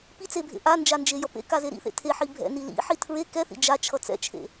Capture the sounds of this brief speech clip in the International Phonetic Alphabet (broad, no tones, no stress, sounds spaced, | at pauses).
p i t͡s e bʱ ḛ ʔ a n d͡ʒ a n d͡ʒ e j ʌ p ḛ k a z e ɾ ḭ θ ḛ tʰ e ħ i bʱ ɛ̰ n i l ḭ ħ i tʰ ɹ e k ɛ θ ḭ d͡ʒ a t͡ʃʰ ʌ t͡s ɛ̰ t͡ʃʰ ḛ